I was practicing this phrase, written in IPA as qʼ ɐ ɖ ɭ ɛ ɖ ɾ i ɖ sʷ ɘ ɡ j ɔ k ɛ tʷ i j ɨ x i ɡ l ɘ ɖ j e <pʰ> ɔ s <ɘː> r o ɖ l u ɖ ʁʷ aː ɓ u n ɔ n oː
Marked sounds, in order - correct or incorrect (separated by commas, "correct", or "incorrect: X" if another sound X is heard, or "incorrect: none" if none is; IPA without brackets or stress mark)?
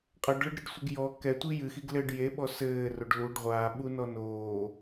incorrect: ɓ, correct